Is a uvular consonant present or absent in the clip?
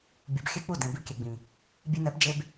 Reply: absent